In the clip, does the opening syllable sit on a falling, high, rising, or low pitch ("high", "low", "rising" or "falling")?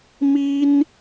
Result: high